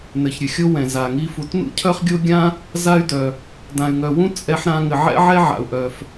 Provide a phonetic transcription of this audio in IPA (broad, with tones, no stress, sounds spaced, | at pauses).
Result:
n ɘ˧ ç ɾʲ ɘ˧ xʲ o˥ w ɛ̃˧ z a˧ ŋ i˥ f u˧ t n ṵ˥ cʰ œ˥ χ ɡʲ o˥ ɡʲ ã˥ | z a˥ y̯ d œ˧ | d ã˧ y̯ ŋ œ˧ w ũ˥ t͡sʼ ɛ˥ ħ ɾ ã˥ ŋ ɘ˧ ʕ ɛ̰˥ ʕ ɛ˥ ʕ a̰˧ u̯ ʔ œ˧ f